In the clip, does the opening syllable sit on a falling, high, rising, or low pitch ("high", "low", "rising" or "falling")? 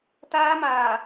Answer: high